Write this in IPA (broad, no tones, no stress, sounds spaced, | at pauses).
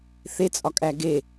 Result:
θ e t͡sʼ ɒ kʼ æ ɡ e